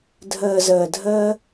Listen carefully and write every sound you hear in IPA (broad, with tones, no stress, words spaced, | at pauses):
dʱəː˨zəː˨dʱəː˧